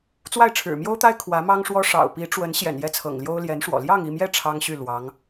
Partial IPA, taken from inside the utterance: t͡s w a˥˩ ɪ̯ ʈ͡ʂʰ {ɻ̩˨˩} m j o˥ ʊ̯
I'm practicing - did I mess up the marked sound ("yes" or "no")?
no